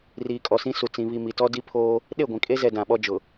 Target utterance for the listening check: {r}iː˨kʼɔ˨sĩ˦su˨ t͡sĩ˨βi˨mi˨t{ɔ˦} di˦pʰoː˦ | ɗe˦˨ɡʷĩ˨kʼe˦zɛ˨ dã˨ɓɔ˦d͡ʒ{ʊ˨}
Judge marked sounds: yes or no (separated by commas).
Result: yes, yes, yes